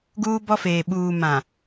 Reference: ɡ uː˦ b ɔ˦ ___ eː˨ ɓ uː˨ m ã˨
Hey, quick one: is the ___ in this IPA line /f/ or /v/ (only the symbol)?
f